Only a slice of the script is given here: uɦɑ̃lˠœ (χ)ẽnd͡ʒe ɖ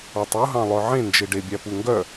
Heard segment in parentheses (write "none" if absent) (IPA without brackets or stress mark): ʕ